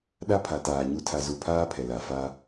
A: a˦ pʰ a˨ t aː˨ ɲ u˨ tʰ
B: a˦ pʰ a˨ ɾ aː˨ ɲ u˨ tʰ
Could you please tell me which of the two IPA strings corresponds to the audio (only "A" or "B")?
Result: A